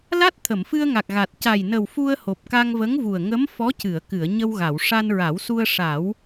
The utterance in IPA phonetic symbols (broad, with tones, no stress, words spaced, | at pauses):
la˦˥t̚t̪ʰə˨˩˨mfɨ˧ə̯ ŋa˨˩k̚ɣa˨˩t̚ ca˨˩jnə˨˩w fu˧ə̯ho˨˩p̚ ka˧ŋvə˧˥ŋvu˨˩ə̯ ŋə˧˥m fɔ˧˥cɨ˨˩˨ə̯kɨ˨˩˨ə̯ ɲə˧wɣa˨˩˨w ʂa˧nɹa˨˩˦wsu˧ə̯ ʂa˨˩˦w